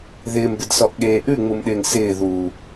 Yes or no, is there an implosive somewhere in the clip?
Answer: yes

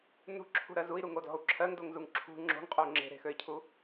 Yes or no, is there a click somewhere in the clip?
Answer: yes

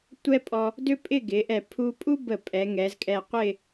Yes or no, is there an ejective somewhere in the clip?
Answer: yes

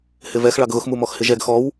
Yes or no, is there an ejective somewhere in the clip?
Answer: no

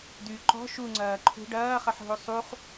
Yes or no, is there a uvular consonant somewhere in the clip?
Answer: yes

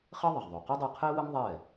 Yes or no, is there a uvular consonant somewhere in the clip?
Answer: yes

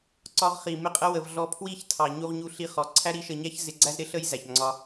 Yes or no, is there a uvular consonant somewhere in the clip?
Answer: yes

